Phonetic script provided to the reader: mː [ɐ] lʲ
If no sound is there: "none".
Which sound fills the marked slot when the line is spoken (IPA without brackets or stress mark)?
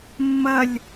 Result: ɐ